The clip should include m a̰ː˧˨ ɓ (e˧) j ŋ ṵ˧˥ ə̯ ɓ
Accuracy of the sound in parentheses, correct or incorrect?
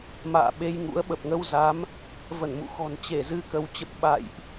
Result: correct